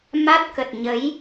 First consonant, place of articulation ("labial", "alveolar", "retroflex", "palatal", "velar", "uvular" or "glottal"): labial